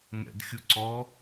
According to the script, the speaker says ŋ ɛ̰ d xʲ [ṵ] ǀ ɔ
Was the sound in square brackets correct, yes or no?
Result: no